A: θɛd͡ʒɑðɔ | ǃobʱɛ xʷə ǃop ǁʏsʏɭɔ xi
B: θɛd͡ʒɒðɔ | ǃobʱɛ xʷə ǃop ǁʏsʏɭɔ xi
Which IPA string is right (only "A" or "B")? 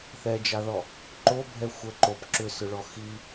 A